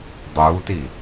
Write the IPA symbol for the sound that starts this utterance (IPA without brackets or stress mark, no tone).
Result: dˤ